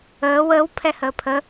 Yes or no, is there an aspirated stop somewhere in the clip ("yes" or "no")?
yes